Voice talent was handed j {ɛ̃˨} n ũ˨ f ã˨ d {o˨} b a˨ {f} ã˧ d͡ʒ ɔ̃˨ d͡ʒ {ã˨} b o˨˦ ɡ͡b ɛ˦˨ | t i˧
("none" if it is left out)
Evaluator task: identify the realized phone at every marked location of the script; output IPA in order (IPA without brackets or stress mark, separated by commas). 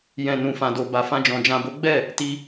ɛ̃˨, o˨, f, ã˨